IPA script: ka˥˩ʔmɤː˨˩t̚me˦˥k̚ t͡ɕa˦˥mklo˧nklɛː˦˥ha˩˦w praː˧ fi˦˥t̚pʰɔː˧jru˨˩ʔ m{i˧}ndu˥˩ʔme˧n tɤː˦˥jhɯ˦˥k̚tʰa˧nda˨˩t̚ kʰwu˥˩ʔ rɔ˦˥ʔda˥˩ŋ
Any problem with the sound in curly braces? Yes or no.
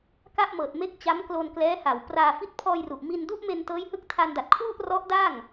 no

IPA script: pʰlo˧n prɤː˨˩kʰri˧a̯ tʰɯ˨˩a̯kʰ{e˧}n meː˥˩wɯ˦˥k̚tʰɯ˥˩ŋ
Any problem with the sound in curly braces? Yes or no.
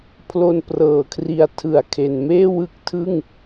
yes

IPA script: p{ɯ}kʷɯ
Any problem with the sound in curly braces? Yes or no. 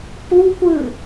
yes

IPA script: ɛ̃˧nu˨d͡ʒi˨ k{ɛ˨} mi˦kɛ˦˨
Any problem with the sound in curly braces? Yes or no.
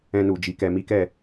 yes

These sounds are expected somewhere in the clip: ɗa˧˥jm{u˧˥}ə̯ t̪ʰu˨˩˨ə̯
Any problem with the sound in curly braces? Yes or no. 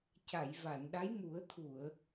yes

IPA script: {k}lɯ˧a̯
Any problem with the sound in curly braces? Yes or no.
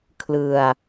yes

